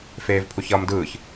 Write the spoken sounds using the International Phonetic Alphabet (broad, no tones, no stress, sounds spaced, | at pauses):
f eː v pʰ u ç ʌː m d ɯː ç